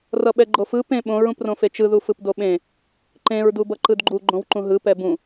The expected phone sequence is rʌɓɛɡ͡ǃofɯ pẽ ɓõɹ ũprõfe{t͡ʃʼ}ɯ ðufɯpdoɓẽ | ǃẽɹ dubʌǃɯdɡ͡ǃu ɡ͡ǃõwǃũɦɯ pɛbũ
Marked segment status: incorrect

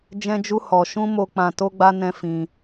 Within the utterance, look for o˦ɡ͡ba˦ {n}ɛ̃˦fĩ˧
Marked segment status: correct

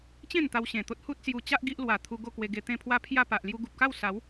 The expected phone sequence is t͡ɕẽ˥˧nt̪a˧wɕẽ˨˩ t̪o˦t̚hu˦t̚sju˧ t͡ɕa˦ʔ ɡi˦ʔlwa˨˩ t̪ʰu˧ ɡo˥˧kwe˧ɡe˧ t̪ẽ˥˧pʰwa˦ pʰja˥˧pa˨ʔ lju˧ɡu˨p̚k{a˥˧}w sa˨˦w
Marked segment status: correct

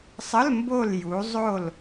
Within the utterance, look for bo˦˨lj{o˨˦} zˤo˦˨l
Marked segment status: incorrect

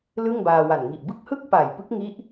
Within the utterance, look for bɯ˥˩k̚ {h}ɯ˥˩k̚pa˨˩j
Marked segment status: correct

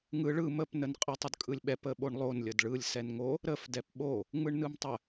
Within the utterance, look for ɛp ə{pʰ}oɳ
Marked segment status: incorrect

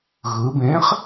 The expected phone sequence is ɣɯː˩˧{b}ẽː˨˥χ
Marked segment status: correct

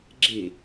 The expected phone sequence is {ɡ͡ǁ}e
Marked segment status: correct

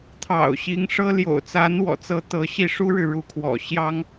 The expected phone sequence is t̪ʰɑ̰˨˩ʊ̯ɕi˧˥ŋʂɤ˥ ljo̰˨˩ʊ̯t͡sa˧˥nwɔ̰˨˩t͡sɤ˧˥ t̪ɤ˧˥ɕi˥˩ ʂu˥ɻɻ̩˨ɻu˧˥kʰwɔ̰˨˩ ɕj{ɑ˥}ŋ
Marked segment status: correct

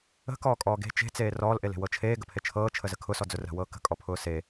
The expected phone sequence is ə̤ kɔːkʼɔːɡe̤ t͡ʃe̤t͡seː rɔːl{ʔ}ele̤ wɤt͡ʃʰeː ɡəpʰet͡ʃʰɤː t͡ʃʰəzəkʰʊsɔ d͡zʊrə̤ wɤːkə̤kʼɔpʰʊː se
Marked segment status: correct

